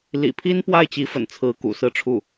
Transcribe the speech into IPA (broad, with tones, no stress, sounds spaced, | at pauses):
l ḭ˨˩ pʰ i˥ n p w a˥˩ ɪ̯ t͡ɕ i˧˥ f ə̰˨˩ n t͡sʰ ɹ̩˧˥ k ṵ˨˩ s ɹ̩˥˧ ʈ͡ʂʰ u˥˩